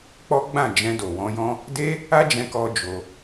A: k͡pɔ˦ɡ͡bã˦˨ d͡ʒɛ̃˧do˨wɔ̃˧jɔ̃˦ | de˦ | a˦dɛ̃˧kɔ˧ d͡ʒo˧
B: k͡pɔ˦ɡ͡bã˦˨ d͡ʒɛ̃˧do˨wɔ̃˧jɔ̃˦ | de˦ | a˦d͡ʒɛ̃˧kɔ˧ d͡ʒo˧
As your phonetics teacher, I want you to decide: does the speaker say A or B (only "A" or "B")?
B